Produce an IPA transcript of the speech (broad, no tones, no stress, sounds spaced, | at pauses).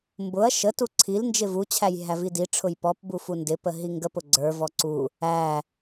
m b ʊ ɐ̯ ʃ ə t u ǀʰ i l n d͡ʒ ɪ v u t͡ɕʰ æ j ɦ æ v i d i ʈ͡ʂʰ ʊ j p ɔ p b u f u n d ɪ p ə ɦ i ŋ ɡ ə p ʊ ɡ͡ǀ ə˞ v ɔ ǀ u | æ